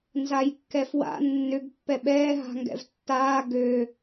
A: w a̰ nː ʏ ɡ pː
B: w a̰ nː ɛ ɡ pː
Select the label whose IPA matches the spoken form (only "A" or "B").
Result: A